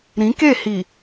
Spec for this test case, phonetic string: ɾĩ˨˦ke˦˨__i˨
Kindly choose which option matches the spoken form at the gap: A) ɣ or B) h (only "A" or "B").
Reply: B